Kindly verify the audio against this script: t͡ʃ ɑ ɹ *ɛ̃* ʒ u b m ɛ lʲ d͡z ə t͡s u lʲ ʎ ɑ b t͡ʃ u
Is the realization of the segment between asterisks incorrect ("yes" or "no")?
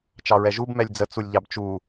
yes